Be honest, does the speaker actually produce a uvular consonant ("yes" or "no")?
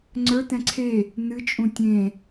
no